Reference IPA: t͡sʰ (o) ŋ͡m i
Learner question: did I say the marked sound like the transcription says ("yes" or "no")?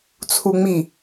no